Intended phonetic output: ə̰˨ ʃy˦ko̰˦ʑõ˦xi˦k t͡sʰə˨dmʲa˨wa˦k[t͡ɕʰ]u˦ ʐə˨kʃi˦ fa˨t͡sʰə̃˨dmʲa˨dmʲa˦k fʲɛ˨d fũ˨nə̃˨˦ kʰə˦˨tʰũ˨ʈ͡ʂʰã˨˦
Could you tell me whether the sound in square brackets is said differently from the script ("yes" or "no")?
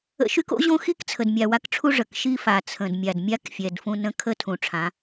yes